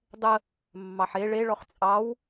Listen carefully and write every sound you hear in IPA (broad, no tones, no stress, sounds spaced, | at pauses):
dˤ ə | mː ɑ ħ e ɭ e ɭ ɔ χ t͡sʼ ɑ w